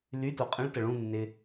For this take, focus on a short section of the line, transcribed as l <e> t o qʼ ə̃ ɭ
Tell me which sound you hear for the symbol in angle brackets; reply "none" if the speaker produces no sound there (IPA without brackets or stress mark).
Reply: y